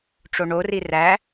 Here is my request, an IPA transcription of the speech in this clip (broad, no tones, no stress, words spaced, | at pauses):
ʈ͡ʂoɳori ræ